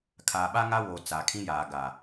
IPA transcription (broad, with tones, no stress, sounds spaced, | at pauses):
kʰ aː˨ ɓ a˦ ŋ a˦ w oː˨ t͡s a˨ kʰ ĩ˦ j aː˨ ɡ a˨